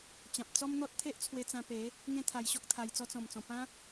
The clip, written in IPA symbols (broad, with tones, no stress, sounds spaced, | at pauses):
t͡ɕ ã˨ p̚ t͡s ɔ˦ m n̪ ɔ˦ t̚ t̪ʰ e˦ ʔ t͡sʰ w e˧ t͡s ã˧ p e˨˦ | ŋ ẽ˦ t̪ʰ a˧ j ɕ ɔ˦ k̚ t̪ʰ a˧ j t͡s ɔ˧ t͡s ɔ̃˨˩ m t͡s ɔ̃˨˩ p ã˦